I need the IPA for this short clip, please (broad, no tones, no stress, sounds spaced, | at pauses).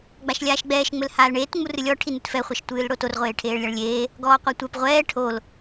ɡ͡b a ʃ lʲ aː ʃ ɡ͡b ɛː ʃ ŋ͡m ɘ l h aː l ɳ eː t ŋ͡m u r ɨ lʲ ɔ ʈʰ i n ɨ t f ɛ χʷ ɐ ʃ tʷ ɨː l ɽ o t o r ʁʷ eː ʈʰ eː ɭ lʲ a ɭ lʲ eː | ɡ ɔː qʷ ɐ tʷ ɛ p ʁʷ ɛː ʈʰ o l